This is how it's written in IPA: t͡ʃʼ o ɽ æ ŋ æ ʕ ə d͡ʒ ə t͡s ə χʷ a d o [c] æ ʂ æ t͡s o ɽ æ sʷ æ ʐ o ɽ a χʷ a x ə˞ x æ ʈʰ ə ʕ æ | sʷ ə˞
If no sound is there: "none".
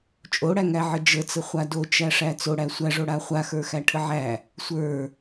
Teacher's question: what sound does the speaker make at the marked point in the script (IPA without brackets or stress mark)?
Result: t͡ʃ